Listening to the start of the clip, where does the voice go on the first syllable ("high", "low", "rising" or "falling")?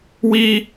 high